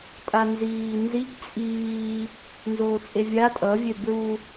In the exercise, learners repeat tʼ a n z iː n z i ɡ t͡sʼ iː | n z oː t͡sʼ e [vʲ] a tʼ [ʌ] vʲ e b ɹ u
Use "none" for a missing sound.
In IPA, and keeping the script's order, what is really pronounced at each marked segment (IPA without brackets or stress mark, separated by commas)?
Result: vʲ, ʌ